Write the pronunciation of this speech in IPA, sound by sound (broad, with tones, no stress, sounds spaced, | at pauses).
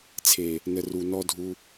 t͡sʰ e˨ | n ə˨ r u˨ n ɔ˧ dʱ u˧